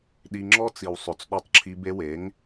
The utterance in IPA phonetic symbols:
ɗ i˧ ŋ͡ǁ ɔ˦ t͡s i˨ w sˤ ɵ˨ t͡s ɗ ɔ˧ tˤ ǁʰ i˧ b e˧ w e˨˦ ŋ

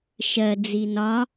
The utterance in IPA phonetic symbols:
ʃ ɜ d͡z i n ɒ

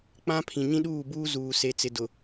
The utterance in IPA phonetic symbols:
k͡p ã˦ pʰ ĩ˨ ɲ ĩ˦ ɗ uː˦˨ b uː˦ z uː˨ s e˨ t͡s ɪ˨ d ʊ˨

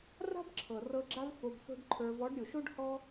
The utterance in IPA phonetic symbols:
r a̤˦ b ǁʰ ɤ˨ r ɤ˧ ɡ͡ǁ a˦ v f o˧ b s o̤˦ ɖ ǃʰ ə˞˧ v ɔ˨˦ ɖ ɾʲ o˨ ʃ o˦ ɖ h ɔ˦

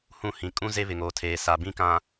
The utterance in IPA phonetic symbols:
h ũ˦˨ h ĩ˨ kʼ ũ˦ z e˦ β ɪ˨ ŋ oː˨ tʰ eː˨ s a˨ b ĩ˦ k ã˨

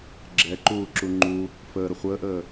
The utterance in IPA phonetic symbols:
ɡ͡ǁ ɛ ǃ uː ǁ u ŋ͡ǃ u | f əː ɾ ə χʷ əː ʔ əː

